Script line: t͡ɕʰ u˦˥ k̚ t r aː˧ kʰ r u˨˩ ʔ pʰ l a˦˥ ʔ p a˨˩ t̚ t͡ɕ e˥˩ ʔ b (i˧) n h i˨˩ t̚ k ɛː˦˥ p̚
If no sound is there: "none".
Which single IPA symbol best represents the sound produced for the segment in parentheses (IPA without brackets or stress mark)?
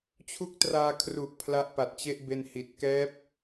e˧